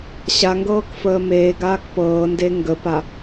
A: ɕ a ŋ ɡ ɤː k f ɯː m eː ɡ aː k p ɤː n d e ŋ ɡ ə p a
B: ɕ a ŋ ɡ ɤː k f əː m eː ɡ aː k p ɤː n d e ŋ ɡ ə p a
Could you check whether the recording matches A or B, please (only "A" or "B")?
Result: B